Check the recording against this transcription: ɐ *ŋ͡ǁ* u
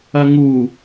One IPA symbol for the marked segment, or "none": ŋ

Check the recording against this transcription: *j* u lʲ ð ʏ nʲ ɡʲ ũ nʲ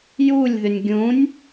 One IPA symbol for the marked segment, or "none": j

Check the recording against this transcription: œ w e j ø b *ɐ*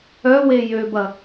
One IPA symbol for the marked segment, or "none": ɐ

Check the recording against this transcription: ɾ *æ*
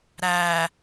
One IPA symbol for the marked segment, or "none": æ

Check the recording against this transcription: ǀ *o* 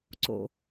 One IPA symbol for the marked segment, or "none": o̰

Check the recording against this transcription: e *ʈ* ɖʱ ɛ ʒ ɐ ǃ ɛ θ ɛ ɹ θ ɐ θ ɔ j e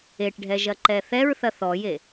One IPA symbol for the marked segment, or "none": ʈ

